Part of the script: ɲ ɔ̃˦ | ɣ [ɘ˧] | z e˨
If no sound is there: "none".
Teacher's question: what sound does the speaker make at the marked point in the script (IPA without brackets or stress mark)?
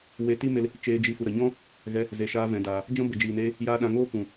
ɛ˧